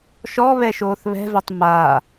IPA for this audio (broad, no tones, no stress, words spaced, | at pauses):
ʃɔβɛʃoːθ βɛ̤vɛtˤ ma